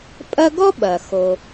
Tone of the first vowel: high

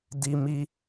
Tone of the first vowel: high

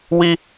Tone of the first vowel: high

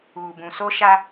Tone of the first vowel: low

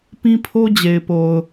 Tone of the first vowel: high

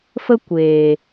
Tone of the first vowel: high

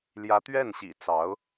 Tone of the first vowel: rising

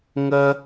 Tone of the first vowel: high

